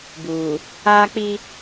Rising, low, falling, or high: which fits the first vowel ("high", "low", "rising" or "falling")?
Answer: low